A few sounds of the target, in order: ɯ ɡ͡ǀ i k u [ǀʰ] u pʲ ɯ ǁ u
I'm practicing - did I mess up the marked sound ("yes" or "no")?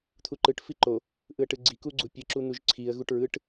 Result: yes